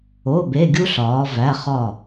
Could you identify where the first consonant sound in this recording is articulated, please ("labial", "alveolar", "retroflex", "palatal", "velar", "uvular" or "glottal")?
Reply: labial